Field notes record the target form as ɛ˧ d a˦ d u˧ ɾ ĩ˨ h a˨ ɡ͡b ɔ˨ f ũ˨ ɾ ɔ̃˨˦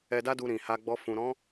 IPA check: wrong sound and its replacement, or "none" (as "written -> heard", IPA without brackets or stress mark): none